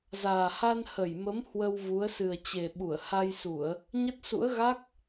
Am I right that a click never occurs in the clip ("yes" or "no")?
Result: yes